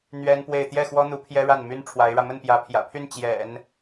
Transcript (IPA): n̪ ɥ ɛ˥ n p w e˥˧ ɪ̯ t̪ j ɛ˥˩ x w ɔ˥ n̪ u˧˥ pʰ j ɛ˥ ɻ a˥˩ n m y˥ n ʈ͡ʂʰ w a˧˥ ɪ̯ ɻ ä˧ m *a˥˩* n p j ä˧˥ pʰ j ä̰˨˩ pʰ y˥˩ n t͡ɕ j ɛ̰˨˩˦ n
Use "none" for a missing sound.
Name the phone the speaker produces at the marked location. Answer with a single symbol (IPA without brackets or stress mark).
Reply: ə˥˩